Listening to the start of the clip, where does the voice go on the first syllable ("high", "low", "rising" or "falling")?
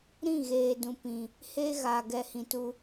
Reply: falling